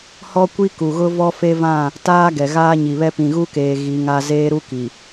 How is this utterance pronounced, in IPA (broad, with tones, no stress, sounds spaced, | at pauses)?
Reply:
h ɔ˦ kʷ i˦ k u˨ ɣ ʊ˦ v ɔ˦ f e˦ v ã˦˨ | t aː˦ ɡ ɛ˨ ɣ aː˦ ɲ i˨ β ɛ˦ p ĩ˨ ɣ u˦ k eː˨ ɣ i˨˦ ŋ a˦ z eː˦ ɾ u˦ k i˨